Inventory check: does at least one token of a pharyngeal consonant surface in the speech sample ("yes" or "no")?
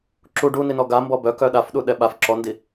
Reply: no